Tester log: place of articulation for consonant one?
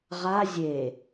uvular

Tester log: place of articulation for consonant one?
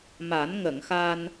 labial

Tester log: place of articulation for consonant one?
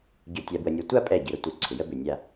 palatal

